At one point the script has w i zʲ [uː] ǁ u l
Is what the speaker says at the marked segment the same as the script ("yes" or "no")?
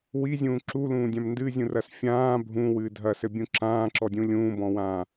no